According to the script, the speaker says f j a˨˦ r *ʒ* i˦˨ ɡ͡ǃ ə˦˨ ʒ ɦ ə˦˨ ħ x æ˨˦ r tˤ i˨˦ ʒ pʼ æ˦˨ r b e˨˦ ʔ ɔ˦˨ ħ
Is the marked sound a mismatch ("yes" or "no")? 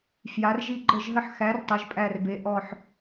no